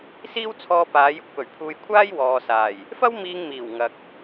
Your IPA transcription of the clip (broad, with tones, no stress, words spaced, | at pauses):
siː˥wt͡sʰɔː˧ paː˨˧jʊ˨˥k̚pɵ˨˩ɥ pʰuː˧jkʷʰaː˥jwɔː˨saː˨˩j | fɐ˥wmiː˧ŋ miː˨˩wŋɐ˨k̚